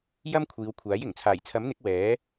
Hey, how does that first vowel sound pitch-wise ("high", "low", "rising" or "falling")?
high